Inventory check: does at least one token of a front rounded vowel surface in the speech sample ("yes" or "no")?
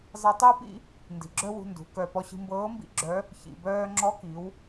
yes